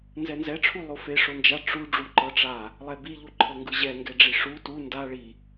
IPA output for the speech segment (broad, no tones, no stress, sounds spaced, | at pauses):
n z ɛ n z ɛ ʈ͡ʂʰ u lˠ o f e ʂ o n d͡ʒ a ʈ͡ʂ u ɖ͡ʐ u ǃ ɤ ʈ͡ʂ a | lˠ ɛ b i ʎ u ǃʰ ɤ ŋ ɡ ɯ ʑ ɛ ŋ ɡ ɛ ɖ͡ʐ i ʂ u t u n d a ɭ i